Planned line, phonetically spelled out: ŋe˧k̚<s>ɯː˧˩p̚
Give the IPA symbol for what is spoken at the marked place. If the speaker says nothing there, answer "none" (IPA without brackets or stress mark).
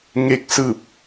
s